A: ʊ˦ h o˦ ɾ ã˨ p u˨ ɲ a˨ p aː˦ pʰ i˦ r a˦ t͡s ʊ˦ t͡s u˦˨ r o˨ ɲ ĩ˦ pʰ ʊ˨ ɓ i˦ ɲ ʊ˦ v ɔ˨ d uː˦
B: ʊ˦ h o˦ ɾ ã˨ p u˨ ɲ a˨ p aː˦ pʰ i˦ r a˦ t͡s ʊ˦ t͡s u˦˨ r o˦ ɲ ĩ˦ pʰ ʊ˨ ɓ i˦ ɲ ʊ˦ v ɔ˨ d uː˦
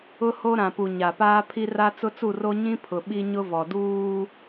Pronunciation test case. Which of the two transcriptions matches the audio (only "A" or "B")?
B